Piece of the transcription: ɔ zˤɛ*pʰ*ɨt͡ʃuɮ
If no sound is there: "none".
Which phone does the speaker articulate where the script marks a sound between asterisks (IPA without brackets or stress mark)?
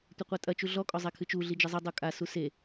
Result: kʰ